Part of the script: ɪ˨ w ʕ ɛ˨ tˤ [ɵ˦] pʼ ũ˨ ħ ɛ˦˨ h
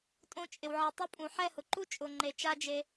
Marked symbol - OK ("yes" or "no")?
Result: no